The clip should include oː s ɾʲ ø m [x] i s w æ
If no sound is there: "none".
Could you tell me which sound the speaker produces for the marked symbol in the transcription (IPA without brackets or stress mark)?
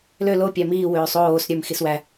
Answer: x